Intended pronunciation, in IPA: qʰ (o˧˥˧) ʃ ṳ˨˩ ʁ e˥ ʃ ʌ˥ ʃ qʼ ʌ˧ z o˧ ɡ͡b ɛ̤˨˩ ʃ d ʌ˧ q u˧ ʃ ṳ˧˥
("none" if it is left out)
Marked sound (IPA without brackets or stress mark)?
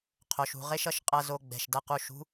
o˩˧